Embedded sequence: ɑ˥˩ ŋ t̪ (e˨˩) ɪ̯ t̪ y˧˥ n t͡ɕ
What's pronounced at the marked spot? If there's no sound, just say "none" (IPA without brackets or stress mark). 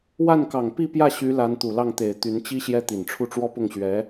e˨˩